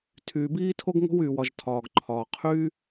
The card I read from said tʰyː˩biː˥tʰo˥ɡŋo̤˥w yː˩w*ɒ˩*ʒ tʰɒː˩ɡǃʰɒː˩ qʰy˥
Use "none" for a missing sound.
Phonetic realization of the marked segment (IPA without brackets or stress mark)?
ɒ˩